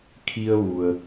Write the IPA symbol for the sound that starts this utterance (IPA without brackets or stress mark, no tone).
kʰ